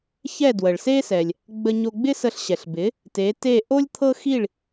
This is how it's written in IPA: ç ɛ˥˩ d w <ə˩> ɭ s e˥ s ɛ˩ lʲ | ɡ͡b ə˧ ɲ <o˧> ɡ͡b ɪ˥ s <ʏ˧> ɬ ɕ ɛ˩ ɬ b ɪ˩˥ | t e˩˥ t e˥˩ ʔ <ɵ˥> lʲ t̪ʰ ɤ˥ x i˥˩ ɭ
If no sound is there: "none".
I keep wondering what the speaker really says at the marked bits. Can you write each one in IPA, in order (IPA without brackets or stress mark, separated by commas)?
ə˩, o˧, ə˧, o˥